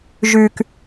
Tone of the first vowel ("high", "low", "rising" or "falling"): low